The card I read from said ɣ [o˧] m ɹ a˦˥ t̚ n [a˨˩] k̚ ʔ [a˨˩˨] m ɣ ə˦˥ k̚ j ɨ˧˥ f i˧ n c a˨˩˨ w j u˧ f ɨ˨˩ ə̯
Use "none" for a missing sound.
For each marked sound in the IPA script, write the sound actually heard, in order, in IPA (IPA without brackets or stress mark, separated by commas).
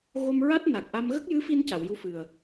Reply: o˧, a˨˩, a˧